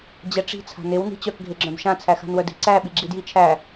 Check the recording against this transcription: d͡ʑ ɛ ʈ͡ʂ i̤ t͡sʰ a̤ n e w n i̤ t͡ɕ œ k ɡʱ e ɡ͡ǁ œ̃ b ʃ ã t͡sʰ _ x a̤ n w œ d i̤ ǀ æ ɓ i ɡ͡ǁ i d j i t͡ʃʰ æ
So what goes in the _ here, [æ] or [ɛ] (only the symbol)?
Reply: æ